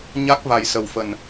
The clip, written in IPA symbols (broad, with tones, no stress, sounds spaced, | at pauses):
ɲ a˦˥ k̚ v a˨˩ j s ə˨˩ w f ə˨˩ n